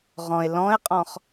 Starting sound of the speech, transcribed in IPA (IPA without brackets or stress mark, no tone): ʁ